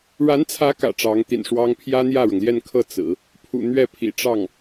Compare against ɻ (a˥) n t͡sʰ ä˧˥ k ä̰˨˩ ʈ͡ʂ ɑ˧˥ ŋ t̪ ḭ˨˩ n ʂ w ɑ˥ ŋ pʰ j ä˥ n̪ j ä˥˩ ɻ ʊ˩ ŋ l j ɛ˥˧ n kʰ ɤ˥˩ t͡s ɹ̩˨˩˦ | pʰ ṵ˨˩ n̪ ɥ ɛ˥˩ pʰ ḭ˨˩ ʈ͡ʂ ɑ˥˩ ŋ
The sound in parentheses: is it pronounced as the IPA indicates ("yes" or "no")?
no